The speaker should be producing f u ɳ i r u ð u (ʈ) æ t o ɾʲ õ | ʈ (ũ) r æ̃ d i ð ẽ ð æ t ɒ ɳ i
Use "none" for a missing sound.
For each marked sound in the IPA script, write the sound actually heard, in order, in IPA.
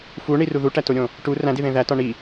ʈ, u

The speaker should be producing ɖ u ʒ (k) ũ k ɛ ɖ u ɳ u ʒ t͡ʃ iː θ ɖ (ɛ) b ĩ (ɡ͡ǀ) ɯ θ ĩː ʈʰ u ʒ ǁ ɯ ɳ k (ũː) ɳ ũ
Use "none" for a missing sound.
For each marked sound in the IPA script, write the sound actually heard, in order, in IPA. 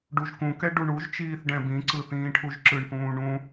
k, ɛ̃, ǀ, ũː

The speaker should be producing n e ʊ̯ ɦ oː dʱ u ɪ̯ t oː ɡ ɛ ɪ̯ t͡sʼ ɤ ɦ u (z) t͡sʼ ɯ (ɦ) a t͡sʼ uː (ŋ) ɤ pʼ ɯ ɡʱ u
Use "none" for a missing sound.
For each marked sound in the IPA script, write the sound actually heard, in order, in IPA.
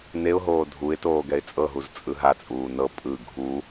z, ɦ, n

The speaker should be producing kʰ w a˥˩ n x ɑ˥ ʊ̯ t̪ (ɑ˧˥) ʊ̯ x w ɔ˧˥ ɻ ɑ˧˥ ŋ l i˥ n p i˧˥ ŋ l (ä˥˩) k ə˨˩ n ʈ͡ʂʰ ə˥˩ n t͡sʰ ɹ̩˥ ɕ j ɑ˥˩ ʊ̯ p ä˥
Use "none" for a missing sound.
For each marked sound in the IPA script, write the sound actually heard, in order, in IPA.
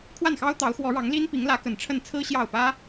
ɑ˧˥, ä˧˥

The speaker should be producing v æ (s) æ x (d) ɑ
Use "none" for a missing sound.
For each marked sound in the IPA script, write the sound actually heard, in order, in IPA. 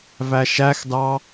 ʃ, d

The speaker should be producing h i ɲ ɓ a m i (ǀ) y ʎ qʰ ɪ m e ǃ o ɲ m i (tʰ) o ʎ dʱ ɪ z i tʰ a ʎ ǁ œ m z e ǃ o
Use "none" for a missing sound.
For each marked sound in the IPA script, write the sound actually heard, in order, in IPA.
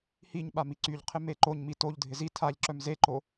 ǀ, t

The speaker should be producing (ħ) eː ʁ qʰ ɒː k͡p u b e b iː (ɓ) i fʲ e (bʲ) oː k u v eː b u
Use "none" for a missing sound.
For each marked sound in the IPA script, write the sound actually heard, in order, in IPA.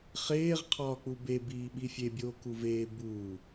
χ, ɓ, bʲ

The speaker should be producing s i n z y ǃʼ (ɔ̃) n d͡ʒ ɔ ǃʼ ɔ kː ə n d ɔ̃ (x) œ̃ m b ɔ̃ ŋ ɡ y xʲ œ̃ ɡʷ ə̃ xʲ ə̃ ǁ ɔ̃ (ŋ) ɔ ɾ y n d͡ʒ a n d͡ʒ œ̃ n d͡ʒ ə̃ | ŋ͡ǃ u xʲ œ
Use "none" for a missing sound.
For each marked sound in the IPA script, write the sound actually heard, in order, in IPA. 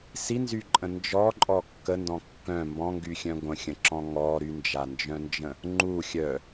ə̃, kː, ŋ

